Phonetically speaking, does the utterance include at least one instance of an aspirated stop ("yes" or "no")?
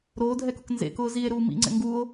no